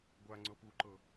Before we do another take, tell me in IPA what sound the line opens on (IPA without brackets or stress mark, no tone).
ɡʷ